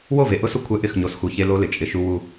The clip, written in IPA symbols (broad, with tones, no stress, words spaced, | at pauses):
wo˦˨ve˨ʔʊ˦sʊ˦ kʷʰɛ˦ ʔɪ˦˨xɲo˨sxu˨ çe˦lo˦lɪ˨ t͡ʃʼɪ˨ ʃu˦ wu˦